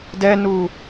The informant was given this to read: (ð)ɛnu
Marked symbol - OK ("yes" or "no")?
no